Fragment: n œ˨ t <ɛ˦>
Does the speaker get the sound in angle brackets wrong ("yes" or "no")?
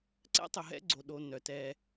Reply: no